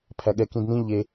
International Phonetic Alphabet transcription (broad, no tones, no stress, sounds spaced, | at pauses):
pʰ æ ɠ ɛ k ĩ d n ĩ ʎ e